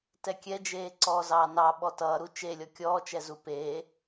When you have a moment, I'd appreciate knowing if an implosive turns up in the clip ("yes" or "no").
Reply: yes